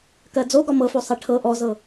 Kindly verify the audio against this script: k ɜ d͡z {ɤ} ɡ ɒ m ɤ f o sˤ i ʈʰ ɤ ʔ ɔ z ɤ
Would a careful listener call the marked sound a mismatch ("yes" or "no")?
yes